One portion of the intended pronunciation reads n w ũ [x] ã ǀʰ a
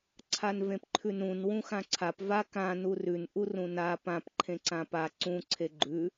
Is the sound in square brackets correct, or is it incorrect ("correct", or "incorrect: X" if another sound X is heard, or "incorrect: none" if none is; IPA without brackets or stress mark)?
correct